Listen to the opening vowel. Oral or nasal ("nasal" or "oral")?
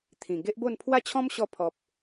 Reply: nasal